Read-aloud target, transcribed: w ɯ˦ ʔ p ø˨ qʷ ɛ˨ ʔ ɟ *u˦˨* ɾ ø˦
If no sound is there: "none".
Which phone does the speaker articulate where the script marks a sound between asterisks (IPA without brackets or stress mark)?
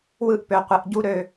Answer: u˦